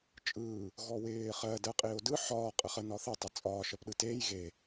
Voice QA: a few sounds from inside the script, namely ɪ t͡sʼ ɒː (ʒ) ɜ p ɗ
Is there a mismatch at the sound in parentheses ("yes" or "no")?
yes